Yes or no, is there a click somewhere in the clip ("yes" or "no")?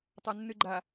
yes